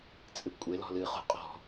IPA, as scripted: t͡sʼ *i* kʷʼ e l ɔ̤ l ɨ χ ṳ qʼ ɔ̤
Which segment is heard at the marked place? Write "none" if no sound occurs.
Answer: ɨ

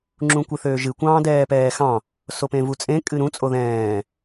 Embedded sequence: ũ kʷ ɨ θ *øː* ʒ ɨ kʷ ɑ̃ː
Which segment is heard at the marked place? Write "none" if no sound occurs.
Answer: øː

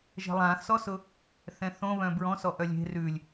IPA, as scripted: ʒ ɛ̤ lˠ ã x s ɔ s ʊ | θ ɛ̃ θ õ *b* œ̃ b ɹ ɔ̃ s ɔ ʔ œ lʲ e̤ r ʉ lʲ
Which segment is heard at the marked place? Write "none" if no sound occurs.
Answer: β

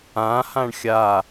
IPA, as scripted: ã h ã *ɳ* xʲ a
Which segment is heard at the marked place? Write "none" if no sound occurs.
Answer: ɳ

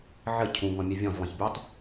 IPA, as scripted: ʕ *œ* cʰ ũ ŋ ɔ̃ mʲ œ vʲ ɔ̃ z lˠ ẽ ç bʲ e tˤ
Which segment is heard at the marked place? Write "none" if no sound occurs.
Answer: ə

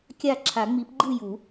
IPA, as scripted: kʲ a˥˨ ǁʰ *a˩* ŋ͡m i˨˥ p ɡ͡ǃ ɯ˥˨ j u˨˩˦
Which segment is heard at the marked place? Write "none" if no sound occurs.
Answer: a˨˩˦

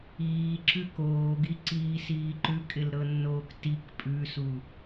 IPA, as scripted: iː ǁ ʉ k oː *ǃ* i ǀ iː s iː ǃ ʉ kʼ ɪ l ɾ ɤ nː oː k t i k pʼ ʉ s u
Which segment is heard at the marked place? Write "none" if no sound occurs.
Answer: ɡ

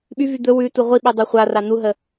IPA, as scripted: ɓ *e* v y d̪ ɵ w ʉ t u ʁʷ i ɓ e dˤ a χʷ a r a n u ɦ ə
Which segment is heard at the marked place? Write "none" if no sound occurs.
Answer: y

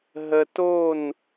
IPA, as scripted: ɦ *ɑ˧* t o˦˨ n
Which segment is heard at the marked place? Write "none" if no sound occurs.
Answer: ə˧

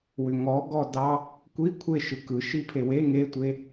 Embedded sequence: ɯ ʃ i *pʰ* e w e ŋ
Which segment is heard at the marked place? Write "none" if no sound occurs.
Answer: pʰ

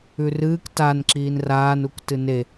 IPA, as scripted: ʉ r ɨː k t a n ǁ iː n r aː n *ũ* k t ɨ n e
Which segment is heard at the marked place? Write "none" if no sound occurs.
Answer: u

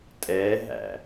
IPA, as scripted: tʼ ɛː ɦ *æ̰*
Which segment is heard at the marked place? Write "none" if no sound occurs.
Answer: æ̰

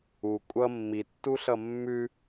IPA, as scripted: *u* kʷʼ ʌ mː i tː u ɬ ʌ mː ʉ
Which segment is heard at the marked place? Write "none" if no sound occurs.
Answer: u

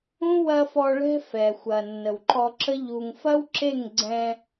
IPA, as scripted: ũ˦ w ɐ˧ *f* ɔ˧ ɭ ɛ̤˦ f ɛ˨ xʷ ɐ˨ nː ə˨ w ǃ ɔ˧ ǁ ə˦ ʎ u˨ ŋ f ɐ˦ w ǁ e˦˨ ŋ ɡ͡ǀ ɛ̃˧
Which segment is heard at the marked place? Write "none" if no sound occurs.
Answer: f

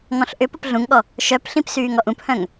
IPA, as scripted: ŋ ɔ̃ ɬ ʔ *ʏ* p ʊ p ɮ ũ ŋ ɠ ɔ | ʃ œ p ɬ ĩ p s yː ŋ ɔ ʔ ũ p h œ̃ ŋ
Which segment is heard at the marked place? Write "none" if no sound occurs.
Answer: ʏ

